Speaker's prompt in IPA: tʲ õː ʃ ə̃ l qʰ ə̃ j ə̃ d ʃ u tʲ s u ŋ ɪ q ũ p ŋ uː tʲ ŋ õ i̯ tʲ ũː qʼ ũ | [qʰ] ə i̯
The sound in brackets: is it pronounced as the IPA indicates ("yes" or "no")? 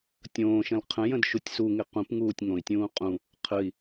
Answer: yes